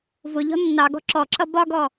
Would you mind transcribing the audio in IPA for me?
vʊʎɔ̤ nːɑɡɔ̤ ǁɔǁʌ bɒɡɔ

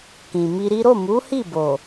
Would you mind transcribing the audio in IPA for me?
kĩ˨mi˧ɾi˦ ɾo˦˨mu˨˦hi˦˨ bo˨

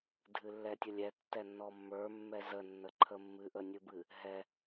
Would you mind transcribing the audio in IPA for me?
dʱɨlːɛtʲəlʲɛ tːɛnːɔmːə˞ mːɛzə nːəǃʰəmːɨ ʔənʲɨbɨ | ɦɛ

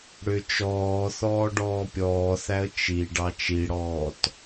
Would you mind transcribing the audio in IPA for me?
ɽʏ t͡ʃɔː θɔːɖɔːpʲɔːθæə̯ t͡ʃi ɖɑt͡ʃiɽɔːt

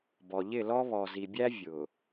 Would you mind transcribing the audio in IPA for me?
bɔ˨ʎɪ˦˨lɔ˦ βɔ˨zi˨bʲæ˦ vʲʊ˨

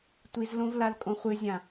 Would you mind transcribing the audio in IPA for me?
tʷizlõv lalkʼõχʷɨzʲã

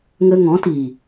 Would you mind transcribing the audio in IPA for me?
ŋə˧ ŋɔ̃˨˦tiː˨

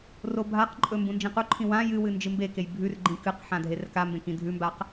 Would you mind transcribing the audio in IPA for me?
robʱaqǃʼɵ mbũnd͡ʒĩquǃʰĩ wã jɨwɨ nd͡ʒɨmbekej bʱʉrɡ͡ǃĩ kɨqħã dʱerkambẽ kĩdʱʉmbaq

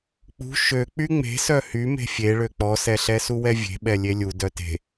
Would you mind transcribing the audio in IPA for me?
k͡pṳ ʃø k͡pyŋ͡me̤ sœhy me̤fʲeɭø k͡pɔsɛɬɛ suwɛvʲe̤ɓɛ lʲelʲu dœte̤

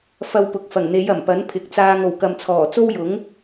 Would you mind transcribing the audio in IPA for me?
fɐ˧wpʊ˨k̚ fɐ˨˩ŋn̪e˨˧j ɐ˨˩mpɐ˨˥n pʰɪ˨˥k̚t͡saː˧ŋ o˨˩w kɐ˨mt͡sʰɔː˨˩ t͡so˥wjʊ˨˥ŋ

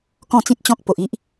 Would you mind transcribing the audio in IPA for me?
kɔ̃˥˧t͡sĩ˦t̚t͡ɕɔ̃˦k̚ po˨ʔi˦ʔ

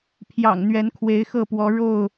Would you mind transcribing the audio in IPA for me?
pʰjɑ̰˨˩ŋ n̪ɥɛ˨˦nkʰwe˨˦ɪ̯xɤ˥˨pwɔ˨˦ ɻo˥˨ʊ̯

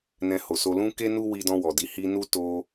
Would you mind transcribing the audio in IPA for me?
nɛ̃˧ho˨so˧ lũ˦ke˦ nu˦wi˧dɔ̃˧ wɔ˨di˧ hi˧nu˦ to˧

